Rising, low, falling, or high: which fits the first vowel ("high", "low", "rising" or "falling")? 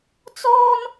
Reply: high